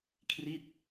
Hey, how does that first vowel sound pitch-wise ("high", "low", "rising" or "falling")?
falling